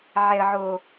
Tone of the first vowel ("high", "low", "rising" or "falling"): low